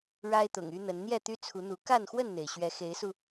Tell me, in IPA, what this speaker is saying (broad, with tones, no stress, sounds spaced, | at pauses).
ɻ a˦ ɪ̯ t̪ ʊ̰˨˩ ŋ y˦ n̪ ə˨˦ n n̪ j ɛ˥˨ t̪ y˦ t͡sʰ u˨˦ n̪ u˨˦ k a˥˨ n x w ə˥˨ n n̪ e˩ ɪ̯ ɕ ɥ ɛ˨˦ x e˨˦ ɪ̯ s u˧